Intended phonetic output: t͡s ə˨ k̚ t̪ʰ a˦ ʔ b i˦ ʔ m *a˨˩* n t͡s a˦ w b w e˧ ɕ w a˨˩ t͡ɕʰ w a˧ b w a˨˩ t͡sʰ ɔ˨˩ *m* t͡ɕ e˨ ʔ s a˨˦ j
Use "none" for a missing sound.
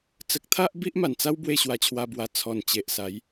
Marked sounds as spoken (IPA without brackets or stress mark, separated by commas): a˨˩, n